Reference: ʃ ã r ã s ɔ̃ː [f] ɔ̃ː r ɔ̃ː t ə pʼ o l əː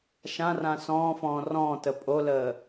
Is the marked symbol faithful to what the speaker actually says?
yes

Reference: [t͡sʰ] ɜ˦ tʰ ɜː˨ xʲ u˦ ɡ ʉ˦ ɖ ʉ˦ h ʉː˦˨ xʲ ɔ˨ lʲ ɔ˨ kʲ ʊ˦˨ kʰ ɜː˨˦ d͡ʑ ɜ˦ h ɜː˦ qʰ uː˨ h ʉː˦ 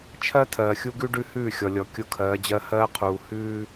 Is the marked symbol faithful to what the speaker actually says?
no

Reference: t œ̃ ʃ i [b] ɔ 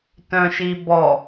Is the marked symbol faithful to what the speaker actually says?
yes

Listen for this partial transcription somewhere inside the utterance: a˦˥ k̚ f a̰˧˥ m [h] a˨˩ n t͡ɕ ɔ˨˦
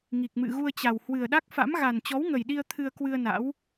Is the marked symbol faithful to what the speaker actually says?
no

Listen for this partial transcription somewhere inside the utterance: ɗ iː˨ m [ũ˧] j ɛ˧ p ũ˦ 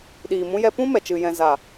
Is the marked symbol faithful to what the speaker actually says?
yes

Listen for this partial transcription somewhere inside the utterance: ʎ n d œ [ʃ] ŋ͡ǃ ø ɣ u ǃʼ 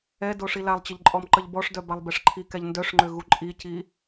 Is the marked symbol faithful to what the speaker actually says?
no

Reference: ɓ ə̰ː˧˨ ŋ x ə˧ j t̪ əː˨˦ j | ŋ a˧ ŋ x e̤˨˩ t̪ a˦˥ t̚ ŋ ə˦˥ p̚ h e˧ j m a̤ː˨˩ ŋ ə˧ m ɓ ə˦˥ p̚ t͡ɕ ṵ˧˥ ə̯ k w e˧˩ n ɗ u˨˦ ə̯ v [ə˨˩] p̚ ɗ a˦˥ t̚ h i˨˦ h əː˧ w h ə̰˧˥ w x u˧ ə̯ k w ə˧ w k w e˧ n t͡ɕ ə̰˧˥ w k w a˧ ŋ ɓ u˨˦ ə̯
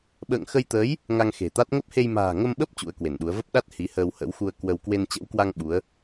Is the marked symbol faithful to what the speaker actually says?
no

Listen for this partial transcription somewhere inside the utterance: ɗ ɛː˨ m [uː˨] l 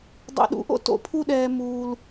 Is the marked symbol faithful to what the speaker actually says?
yes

